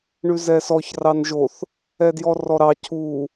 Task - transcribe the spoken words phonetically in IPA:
ɳʉzɛsɔç rɑnʒoθ | ɛdjɔrɔɾɑ cʰu

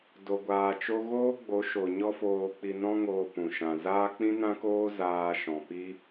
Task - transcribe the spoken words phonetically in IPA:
do˨ɡʷaː˨ t͡ʃo˦ ɣoː˦ɡ͡bo˨˦ ʃo˨ ɲɔ˦foː˧k͡pi˧ nɔ̃˦ŋoː˧pũ˨ ʃã˨zaː˦ k͡pĩ˦nã˦koː˦ zaː˧ʃɔ̃˨pi˦

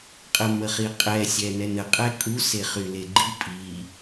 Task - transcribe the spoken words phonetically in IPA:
qʼəməχiqʼɛ sʲɛnɛnə qʼɛkʼu seχyleɡ͡ǃi pʼi

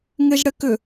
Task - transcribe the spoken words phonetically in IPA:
ŋeʒɽɛkʏ

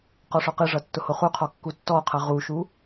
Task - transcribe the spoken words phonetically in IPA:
qɔʂɔqɨʐʌ tːʊhoχuqʰɔ kːutːɔqʰʌ ʁuʃu

